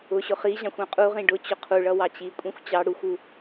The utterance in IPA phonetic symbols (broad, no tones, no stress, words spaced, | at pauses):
ʊɕʊ χiʑɑ̃xʷ ɑ̃qʼuʁĩ ɖʊ t͡ɕʊqʰuɭʌ wɑt͡ɕikʷʼĩxʷ t͡ɕɑ ɽuxʷu